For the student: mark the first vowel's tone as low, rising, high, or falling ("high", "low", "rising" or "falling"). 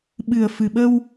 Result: low